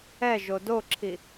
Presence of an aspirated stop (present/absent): present